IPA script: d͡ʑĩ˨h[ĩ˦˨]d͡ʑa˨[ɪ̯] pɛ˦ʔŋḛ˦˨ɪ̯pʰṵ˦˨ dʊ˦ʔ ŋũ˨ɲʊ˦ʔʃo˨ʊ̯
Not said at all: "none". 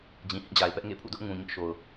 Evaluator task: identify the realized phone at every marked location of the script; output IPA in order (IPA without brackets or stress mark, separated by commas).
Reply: ĩ˦˨, ɪ̯